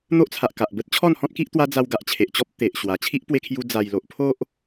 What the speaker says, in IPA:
n̪ o˦ ʔ t͡sʰ a˨ ʔ k a˨ ʔ b ə˦ t̚ t͡ɕʰ ɔ˥˧ n h ɔ̃˦ t̚ k i˦ ʔ t̪ w a˦ d͡z a˧ w ɡ a˨ ʔ t͡ɕʰ e˨ ʔ t͡ɕ ɔ˦ p̚ t̪ e˨ ʔ ɕ w a˨˩ t͡ɕʰ i˦ ʔ p w e˧ kʰ j u˧ d͡z a˨˩ j l o˨ ʔ pʰ o˦ ʔ

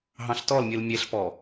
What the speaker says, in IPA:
ɦ ɑ̃ ɬ t ɔ l mʲ ɯ l mʲ e ɬ p ɔ

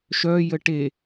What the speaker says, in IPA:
ʃ œ j ə ʈ e

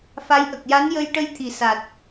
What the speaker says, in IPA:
f a˧˥ j ʔ ə˨˩ k̚ j a˧˥ n j ə˧ j ʈ ə˧ j t̪ʰ i˨˩ s a˨˩ t̚

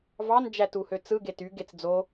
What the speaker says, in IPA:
v ɑ n d͡ʒ æ t u h ø t͡s ɯ ɡ e t y ɡ e t͡s d͡z o

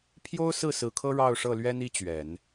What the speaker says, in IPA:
pʰ j o˥ ʊ̯ s ɹ̩˥˩ s ɹ̩˧˥ kʰ ɤ˥ ɻ ɑ˥˧ ʊ̯ ʂ ɤ˥˩ l ɥ ɛ˥ n i˥ t͡ɕ ɥ ɛ˨˩˦ n

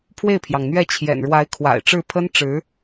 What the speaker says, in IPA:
pʰ w e˥˩ ɪ̯ pʰ j ɑ˩ ŋ n̪ ɥ ɛ˥˩ t͡ɕʰ j ɛ̰˨˩ n ɻ w a˧˥ ɪ̯ kʰ w a̰˨˩ ɪ̯ ʈ͡ʂ ɻ̩˥˩ pʰ ə˥ n ʈ͡ʂ ɻ̩˧˥

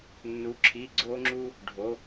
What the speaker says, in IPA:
nː u˩˧ ǁʰ i˩˧˩ ɡ͡ǀ o˧ ŋ͡ǁ u˧ | ɖʱ o˩˧

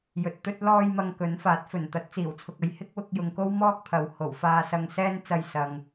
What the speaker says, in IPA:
j ɵ˨ t̚ t̪ ɵ˥ t̚ l ɔː˧ j m ɐ˧ ŋ k ɵ˨˥ n f aː˨˥ t̚ f ɵ˨˩ n t̪ ɐ˨˥ t̚ t͡s iː˨˩ w t͡sʰ ʊ˨ k̚ ɐ˧ j h ɪ˥ k̚ w ʊ˧ k̚ j ʊ˨ ŋ k o˥ w m ɔː˥ k̚ pʰ ɐ˨ w h o˨˩ w f aː˧ s ɐ˧ ŋ s ɛː˥ n t͡s ɐ˧ j s ɐ˨ ŋ

